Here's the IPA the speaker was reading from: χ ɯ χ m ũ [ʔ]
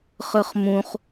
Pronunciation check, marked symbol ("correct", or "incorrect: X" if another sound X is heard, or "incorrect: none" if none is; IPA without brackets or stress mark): incorrect: χ